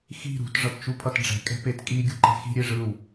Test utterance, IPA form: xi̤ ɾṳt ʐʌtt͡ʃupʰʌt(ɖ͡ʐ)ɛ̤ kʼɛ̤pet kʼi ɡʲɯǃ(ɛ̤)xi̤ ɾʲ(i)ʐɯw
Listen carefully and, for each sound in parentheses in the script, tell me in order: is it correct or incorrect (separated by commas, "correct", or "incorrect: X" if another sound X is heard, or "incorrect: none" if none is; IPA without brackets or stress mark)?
correct, correct, incorrect: e